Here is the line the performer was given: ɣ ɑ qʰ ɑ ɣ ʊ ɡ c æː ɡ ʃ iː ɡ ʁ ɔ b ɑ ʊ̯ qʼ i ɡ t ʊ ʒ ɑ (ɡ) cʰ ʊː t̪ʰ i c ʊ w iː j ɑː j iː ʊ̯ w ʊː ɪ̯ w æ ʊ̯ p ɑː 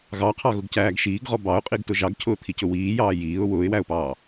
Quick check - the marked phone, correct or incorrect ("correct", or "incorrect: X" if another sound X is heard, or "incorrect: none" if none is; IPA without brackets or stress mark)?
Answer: correct